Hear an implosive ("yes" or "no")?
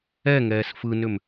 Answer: no